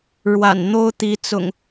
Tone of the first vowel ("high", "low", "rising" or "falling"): low